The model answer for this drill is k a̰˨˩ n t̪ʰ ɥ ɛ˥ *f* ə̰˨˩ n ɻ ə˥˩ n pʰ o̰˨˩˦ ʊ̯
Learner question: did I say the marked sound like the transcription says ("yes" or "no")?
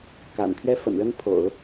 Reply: yes